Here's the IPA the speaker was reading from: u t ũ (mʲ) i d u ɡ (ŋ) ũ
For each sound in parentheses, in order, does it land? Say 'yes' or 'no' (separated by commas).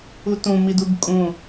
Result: no, no